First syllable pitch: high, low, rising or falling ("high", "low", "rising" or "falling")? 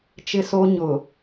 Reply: high